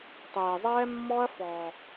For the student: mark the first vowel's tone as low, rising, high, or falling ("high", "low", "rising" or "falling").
low